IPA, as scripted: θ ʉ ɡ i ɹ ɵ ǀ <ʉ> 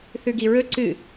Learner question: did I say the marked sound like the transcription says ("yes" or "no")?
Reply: no